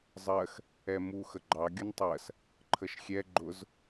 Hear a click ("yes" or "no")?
yes